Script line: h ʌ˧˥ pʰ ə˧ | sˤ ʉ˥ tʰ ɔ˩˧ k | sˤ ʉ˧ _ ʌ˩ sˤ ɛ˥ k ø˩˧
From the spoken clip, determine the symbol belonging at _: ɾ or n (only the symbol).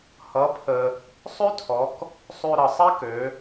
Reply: ɾ